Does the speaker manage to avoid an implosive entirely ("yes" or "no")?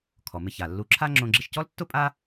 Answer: yes